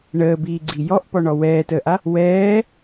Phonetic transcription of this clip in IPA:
ɳ əː b iː ɡ͡ǀ i j ɔ ʔ p ɔ ɳ ɔ w ɛː t əː ʔ a | w ɛː

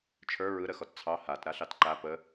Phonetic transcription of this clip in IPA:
t͡ʃʰ ə˞ ɹ ɯ ɾ ə x ɔ t t͡sʰ ɑ h a t ɾ a ɬ ɑ t ǃ a p ə

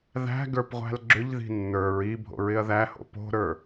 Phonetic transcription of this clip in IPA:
ð æ̤ ɡ ə˞ p ʁʷ æ̤ l ɡ͡ǁ ʏ ʎ ð i̤ nː ə˞ ɹ i bʱ o̰ ɹ ɪ ɐ̯ ð æ h o̰ p o̤ ɾ ə˞

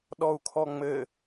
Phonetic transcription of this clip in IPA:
ɗ ɔ u̯ kʰ ɔ ŋ͡m ɘ

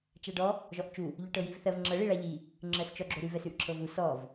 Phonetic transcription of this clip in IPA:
t͡ʃ a ɖ ɔ | ʒ ɔ ʔ t͡ʃ u | ʎ ʉ ʈ ɤ j i v θ ɜ v ŋ͡ǁ ɤ ɭ i ɭ a ʎ i | ŋ͡ǁ ɜ s t͡ʃ ɔ ɡ͡ǁ o ɾ ʉ v ɛ s ʉ ʔ ǁʰ ɤ v u s ɔ v

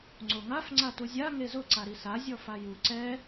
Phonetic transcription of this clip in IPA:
ŋ͡ǀ o ŋ a f ŋ͡ǀ a t u zʲ a ŋ e z ʊ ǀ a ɾ i s a zʲ ɔ f a j u ǀ ɛ

